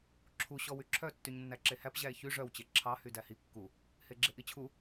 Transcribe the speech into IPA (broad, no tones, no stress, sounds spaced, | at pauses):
ǁʰ u ɕ ɔ w y ǁʰ œ tː y ɲ nː æ ǁ e h æ p ʑ æ e̯ ç y ʐ œ w t͡ɕ e ǁʰ ɑ h y d æ h i kː u | h e ɡ͡ǁ e ʔ i t͡ɕʰ u